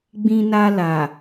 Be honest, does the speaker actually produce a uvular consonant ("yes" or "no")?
no